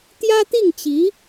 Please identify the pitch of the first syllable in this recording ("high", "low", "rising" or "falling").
high